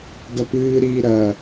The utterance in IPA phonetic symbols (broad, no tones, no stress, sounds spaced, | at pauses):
d ɐ p ɨː ɾ iː ɾ ɐ